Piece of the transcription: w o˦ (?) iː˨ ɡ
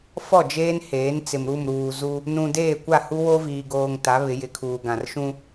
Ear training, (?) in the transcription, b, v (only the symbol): v